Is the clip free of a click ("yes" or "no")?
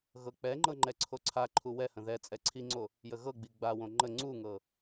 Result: no